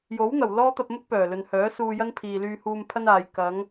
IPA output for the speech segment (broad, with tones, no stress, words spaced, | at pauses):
jo˨˥wn̪ɐ˨˩w lɔː˥t̪ɐ˧p̚mʊ˥k̚pœː˨˩ lɵ˨nhœː˨˥suː˧ jɐ˥npʰiː˨ lyː˧huː˧mpʰɐ˥naː˨j kɐ˨˧ŋ